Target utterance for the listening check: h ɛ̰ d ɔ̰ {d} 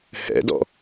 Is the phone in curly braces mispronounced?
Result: yes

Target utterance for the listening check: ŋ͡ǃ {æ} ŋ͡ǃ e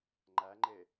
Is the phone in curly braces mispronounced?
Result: no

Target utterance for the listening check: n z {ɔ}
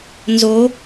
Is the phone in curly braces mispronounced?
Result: yes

